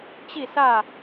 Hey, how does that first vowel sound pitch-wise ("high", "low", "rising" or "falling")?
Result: falling